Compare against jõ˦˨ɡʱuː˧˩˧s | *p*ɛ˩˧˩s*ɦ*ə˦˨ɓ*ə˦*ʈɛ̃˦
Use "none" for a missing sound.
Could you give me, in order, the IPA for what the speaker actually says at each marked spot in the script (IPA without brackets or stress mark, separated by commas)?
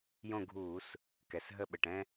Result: k, ɦ, ə˩˧˩